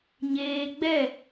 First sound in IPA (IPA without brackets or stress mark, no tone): ɲ